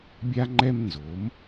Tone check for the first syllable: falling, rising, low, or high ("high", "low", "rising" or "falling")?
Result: high